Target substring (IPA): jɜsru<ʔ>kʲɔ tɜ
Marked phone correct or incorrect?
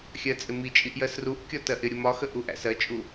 correct